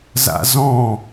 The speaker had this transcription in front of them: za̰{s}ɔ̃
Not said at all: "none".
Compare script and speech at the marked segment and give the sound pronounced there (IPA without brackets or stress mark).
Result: z